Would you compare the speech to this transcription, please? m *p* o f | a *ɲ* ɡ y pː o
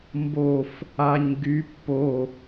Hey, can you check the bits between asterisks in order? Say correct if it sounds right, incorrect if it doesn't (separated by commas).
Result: incorrect, correct